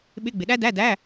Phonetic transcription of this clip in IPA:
ɓ ɪ˧˥˧ ɡ͡b ɪ˨ ɗ æ˥ d æ˧˥˧ d æ˧˥˧

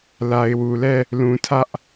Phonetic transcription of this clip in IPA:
l a˨ ɪ̯ w u˨ l ɛ˦˨ | l ũ˨ tʰ ä˦ ʔ

